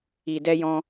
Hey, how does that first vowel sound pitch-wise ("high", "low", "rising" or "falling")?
low